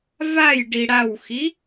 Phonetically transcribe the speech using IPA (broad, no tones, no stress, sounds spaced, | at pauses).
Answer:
v a j ɖ i ɽ a w x i